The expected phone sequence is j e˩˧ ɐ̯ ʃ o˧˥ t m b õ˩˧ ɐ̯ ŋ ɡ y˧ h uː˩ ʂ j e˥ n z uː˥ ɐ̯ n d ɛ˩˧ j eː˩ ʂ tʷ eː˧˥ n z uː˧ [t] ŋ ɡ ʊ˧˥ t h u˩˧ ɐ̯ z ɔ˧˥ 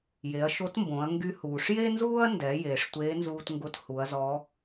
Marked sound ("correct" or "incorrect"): correct